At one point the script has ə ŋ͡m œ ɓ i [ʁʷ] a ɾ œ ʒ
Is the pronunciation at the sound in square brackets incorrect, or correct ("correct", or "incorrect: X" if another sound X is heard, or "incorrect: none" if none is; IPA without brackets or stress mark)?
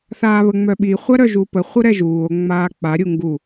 incorrect: χʷ